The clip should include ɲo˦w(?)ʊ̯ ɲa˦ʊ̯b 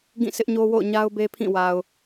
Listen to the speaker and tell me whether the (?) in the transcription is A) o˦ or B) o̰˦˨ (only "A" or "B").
B